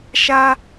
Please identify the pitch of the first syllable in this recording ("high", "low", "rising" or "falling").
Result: high